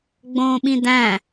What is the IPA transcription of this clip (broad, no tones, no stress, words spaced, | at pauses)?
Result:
ɡ͡bõːɓĩdæ̃